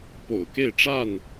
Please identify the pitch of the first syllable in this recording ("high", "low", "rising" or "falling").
low